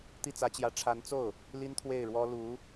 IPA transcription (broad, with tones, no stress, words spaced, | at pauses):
t̪i˥˩t͡sä˧˥t͡ɕjä˧˥ ʈ͡ʂʰa˧˥nt͡so˥˩ʊ̯ | li˥nt̪ʰwe˥˩ɪ̯ɻwɔ˥ lu˧˥